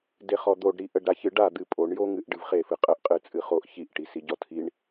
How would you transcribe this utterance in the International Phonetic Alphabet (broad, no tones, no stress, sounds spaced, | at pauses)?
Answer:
d e χ ɔ d̪ o ɖ ɾ i ʔ ə ɖ ɾ a ç ɨ ɖ a d̪ ɨ pʼ o ɳ j o ŋ ɨ ʔ ɖ ɨ v χ e f ɨ qʼ ə ʔ qʼ ɨ t͡sʼ ɨ χ o ʔ ç i ʔ ʈ i s i ɟ ɔ tʰ i ɳ